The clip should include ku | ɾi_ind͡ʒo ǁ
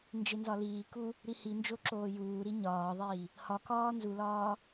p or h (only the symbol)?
h